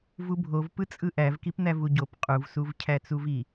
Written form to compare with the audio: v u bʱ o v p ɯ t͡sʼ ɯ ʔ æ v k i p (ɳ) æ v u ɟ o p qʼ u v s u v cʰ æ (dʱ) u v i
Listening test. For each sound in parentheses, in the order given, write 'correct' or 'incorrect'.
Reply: incorrect: n̪, incorrect: t͡s

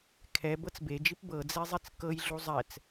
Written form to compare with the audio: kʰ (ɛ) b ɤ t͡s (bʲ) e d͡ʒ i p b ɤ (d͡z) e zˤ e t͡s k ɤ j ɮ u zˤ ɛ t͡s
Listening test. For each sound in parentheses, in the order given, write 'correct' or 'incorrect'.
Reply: correct, incorrect: b, correct

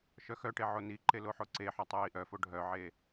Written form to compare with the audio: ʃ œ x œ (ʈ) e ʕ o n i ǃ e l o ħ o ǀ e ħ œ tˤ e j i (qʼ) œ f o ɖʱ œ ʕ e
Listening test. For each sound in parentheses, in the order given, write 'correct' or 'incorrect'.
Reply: correct, incorrect: ʔ

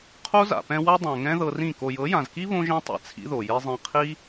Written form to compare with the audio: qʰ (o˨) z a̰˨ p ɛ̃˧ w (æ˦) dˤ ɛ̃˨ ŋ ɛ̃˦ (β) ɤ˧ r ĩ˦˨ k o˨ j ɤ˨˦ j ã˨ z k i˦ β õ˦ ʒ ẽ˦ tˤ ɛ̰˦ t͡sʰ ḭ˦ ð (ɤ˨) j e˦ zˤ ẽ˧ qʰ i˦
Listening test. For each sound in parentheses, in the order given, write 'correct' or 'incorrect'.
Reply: incorrect: o˦, incorrect: a˦, incorrect: ð, incorrect: o˨

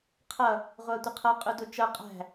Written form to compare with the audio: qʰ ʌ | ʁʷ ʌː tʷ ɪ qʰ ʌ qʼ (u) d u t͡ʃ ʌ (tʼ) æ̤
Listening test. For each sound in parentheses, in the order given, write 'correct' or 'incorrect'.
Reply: correct, incorrect: qʼ

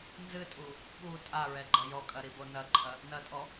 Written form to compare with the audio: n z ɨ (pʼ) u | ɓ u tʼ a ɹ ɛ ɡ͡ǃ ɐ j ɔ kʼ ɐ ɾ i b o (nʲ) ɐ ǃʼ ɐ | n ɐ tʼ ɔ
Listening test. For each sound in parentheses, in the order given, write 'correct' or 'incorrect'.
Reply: incorrect: tʼ, incorrect: n

